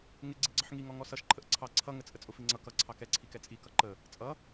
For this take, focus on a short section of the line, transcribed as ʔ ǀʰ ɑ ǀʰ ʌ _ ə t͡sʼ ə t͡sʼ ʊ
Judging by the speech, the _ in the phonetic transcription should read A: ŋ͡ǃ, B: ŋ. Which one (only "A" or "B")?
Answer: B